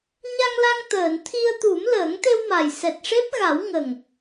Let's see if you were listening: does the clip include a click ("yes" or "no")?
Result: no